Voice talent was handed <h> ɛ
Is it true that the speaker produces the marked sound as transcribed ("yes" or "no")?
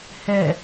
yes